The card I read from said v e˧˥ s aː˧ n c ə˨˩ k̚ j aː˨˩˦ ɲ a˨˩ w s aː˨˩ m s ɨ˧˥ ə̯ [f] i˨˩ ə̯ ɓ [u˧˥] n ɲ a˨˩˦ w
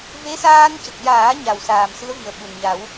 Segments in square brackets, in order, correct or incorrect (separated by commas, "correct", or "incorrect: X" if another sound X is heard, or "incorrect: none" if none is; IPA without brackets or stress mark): incorrect: v, incorrect: u˨˩